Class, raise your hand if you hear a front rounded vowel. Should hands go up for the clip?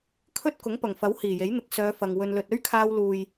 yes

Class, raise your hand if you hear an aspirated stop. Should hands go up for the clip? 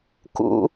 no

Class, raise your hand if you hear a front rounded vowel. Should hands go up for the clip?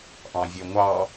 yes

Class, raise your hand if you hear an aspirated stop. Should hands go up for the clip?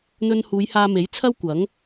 yes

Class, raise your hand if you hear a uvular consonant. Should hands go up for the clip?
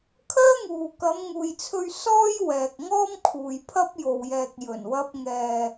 no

